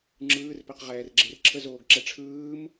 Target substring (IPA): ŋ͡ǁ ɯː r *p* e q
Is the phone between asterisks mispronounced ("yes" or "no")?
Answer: no